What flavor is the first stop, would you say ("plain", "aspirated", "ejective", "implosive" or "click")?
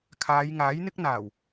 aspirated